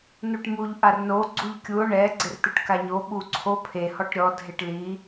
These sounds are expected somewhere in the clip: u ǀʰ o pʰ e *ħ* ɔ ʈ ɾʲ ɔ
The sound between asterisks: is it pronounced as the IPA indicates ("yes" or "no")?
no